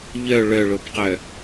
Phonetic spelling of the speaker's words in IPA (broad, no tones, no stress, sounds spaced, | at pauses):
ʎ œ ɭ œ ɭ o b q œ